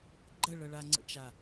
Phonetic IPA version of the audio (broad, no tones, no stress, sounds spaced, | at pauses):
ɡ͡ǃ ə ɭ ɤ ɭ a ŋ͡ǀ ə̰ t͡ʃ a